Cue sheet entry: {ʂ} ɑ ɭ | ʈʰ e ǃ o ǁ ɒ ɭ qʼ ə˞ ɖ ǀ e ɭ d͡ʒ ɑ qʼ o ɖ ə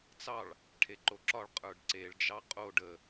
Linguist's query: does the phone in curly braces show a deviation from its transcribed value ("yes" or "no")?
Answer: yes